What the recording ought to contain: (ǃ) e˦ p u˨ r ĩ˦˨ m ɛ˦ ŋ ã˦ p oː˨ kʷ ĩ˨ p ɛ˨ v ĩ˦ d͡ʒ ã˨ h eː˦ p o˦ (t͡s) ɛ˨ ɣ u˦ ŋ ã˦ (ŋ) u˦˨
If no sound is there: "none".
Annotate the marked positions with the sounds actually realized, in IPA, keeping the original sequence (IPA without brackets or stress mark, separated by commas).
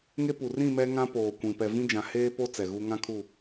ŋ, t͡s, kʰ